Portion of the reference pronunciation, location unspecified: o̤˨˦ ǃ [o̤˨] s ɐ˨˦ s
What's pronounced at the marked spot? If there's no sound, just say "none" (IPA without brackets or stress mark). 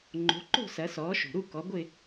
o̤˥˧